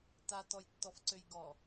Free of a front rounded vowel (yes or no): no